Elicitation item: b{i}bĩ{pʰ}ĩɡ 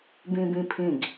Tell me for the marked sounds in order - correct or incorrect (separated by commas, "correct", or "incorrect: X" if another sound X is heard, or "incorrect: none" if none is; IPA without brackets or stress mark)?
incorrect: ĩ, correct